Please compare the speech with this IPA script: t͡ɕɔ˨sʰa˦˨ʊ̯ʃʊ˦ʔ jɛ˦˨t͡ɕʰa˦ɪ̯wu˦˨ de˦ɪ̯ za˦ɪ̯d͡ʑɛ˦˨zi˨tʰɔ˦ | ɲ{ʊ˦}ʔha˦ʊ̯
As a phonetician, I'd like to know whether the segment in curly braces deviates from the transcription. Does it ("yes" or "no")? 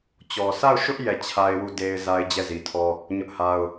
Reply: no